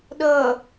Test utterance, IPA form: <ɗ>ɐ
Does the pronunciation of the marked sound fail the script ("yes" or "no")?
no